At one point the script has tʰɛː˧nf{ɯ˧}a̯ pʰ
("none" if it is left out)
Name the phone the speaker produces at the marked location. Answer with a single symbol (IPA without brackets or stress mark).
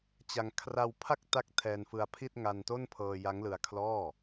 ɯ˧